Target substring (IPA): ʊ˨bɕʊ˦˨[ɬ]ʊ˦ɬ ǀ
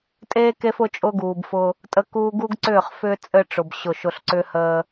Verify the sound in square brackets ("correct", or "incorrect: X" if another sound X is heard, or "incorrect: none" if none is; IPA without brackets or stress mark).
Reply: incorrect: ʃ